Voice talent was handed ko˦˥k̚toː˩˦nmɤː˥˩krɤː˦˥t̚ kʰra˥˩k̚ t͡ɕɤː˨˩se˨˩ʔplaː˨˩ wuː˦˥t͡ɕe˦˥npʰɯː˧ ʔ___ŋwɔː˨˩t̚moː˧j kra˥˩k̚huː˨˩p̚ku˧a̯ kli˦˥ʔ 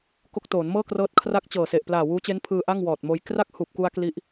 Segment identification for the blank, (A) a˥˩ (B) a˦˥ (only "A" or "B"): A